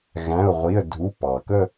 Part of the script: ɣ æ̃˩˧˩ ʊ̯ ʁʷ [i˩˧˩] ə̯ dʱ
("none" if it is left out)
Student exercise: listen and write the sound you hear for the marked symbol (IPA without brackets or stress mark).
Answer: i˩˧˩